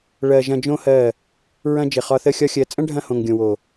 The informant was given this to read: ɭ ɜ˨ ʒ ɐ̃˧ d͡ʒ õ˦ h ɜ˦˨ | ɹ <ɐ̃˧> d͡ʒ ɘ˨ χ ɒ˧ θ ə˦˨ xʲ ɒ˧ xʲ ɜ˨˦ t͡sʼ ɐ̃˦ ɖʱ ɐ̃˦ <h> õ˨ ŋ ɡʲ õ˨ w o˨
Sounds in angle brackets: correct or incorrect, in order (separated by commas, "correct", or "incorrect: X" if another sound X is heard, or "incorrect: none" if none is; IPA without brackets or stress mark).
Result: correct, correct